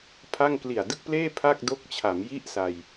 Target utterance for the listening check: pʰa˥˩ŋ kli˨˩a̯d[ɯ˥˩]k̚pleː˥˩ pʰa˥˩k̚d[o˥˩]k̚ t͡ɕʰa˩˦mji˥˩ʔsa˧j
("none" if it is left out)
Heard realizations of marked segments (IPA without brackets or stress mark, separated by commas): ɯ˥˩, o˦˥